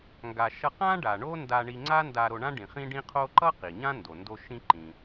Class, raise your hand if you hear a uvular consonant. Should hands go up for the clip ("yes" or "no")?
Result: yes